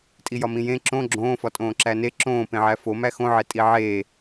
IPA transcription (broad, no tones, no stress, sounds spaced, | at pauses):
tʼ i j ɒ m ĩ j ẽ ǁ õ ɡ͡ǁ õː f ɒ tʼ õː ǁ æ n e ǁ õː p ẽ ʕ æ f o m æ x õ ʕ e tʼ i ʕ eː